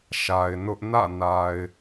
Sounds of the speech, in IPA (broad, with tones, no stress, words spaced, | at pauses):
ʃa˨ɪ̯nʊ˦ʔ nä̰˦˨na˨ɪ̯